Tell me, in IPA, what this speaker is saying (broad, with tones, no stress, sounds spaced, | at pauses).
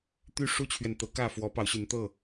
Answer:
t̪ y˦ ʂ u˦ t͡ɕʰ ɥ ɛ˨ n t̪ ɤ˨˦ k ä˥˨ f w ɔ˨˦ p ɑ˨˦ ʊ̯ ɕ y˨˦ n t̪ ɤ˥˨